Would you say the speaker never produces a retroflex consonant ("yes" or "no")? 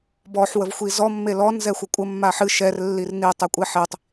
yes